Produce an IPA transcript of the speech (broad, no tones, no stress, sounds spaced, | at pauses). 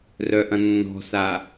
r œ ʔ ɐ̃ nː ɔ̤ s a